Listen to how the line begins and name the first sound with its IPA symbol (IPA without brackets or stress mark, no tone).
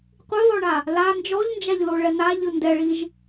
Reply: qʷ